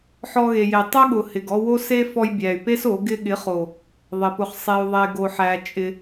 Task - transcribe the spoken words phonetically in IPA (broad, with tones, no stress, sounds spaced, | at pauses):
ħ ɔ˧ ɣ e˨ j e˨ tˤ ʊ˦ ɠ ʊ˨ h ɪ˨ ɡ ɔ˧ w o˦ s e˦ f ɔ˧ j bʲ æ˨ y̯ p e˦ s o˨˦ ɡ ɪ˧ ɠ ɪ˨˦ χ o˨ | ðˤ ɪ˨ p ʊ˧ χ sˤ e˧ u̯ ðˤ e˧ ɡ o˧ ħ æ˧ t͡ʃʼ ɪ˧